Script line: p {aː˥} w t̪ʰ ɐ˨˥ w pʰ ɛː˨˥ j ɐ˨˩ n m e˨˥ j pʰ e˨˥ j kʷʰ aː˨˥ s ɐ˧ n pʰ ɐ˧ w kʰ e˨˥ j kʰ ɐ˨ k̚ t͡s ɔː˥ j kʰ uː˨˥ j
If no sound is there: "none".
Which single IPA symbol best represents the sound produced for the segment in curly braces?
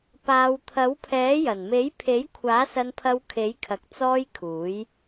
aː˨˧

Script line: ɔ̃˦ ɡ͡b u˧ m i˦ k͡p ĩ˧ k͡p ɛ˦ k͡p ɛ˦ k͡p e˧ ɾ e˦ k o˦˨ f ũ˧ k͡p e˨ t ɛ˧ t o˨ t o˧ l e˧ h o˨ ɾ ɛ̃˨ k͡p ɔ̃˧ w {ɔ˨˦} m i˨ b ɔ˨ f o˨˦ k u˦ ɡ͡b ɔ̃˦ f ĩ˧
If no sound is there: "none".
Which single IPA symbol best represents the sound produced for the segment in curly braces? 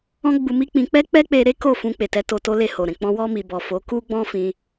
ɔ˧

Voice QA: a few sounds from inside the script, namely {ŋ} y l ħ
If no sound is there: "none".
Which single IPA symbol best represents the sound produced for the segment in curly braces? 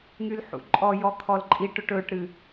ŋ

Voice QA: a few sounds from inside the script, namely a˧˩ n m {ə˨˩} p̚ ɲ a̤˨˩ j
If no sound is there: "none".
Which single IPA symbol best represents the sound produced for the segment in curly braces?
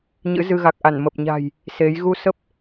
ə˨˩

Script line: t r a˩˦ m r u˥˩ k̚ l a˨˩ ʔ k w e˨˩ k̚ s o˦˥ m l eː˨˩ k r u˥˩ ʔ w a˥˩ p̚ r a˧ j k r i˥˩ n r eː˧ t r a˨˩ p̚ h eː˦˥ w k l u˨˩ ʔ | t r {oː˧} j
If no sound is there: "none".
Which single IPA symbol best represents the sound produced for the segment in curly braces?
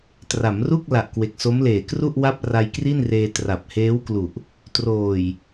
oː˨˩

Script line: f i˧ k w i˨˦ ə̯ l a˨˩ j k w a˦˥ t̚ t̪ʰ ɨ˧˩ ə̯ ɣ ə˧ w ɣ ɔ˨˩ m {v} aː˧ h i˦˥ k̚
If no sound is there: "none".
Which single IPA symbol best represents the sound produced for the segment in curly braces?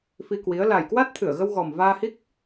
v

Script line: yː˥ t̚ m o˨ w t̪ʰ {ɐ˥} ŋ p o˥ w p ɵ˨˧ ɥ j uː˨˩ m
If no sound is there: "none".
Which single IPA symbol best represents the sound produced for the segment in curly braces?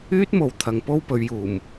ɐ˨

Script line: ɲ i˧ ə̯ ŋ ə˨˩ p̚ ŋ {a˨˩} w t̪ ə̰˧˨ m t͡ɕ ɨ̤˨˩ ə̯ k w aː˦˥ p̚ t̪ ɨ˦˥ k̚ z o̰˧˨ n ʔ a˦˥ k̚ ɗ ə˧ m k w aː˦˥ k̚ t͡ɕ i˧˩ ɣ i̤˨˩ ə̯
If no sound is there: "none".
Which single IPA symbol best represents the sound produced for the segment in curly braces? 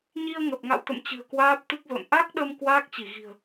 a̰˧˨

